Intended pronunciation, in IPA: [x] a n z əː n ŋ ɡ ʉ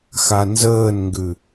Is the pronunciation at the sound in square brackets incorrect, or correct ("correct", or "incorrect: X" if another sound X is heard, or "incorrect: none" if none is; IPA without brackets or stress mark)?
correct